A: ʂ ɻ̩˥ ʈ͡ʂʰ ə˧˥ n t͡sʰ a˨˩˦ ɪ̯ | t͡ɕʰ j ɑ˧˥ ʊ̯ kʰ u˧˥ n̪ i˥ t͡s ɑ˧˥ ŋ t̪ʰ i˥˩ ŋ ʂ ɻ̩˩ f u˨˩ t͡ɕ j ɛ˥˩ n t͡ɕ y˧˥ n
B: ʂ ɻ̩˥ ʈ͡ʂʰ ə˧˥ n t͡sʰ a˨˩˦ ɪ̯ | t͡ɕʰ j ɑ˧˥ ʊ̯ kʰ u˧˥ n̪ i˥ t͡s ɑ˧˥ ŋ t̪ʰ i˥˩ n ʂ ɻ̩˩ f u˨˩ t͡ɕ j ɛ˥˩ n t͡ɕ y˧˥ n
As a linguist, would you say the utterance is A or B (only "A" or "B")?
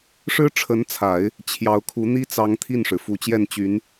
B